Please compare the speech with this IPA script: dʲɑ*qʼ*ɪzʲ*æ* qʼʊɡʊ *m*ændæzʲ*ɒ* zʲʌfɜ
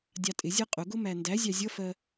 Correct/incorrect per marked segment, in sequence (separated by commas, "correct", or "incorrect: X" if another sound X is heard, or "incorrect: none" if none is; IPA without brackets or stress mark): incorrect: tʼ, incorrect: ɜ, correct, incorrect: ɑ